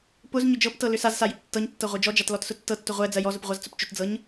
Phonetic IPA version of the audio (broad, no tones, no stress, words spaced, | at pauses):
pʊz ɲʏd͡ʒɤptɤ lʏsazsa jʏptːɤɲtːɤ ʁʷed͡ʒɔd͡ʒat lɔtsʊtːɤtːʊ ʁʷɛ d͡zɜjɔzʊp ʁʷazt͡sʊpt͡ʃʏtd͡zɤɲ